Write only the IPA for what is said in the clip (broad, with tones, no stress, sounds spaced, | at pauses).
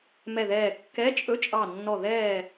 m ɛ˧˩ ð ɛː˧˩ kː ɛ˧˥˧ t͡ʃʼ ɵ˧˥˧ t͡ʃʼ ɑ˧˩ nː ɔ˧˩ ð ɛː˧˩